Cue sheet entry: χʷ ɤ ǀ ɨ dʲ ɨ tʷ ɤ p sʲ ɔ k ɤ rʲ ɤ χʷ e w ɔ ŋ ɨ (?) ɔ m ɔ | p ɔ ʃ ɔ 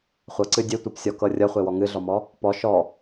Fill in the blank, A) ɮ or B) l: A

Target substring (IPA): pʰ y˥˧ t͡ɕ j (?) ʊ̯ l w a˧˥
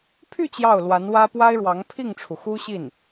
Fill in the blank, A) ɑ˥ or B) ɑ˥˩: B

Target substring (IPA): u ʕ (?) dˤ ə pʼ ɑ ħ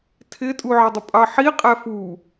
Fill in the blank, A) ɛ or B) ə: B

